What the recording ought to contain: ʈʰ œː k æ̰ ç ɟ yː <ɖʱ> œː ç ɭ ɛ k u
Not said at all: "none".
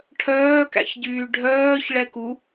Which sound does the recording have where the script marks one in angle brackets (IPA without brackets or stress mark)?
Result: ɖʱ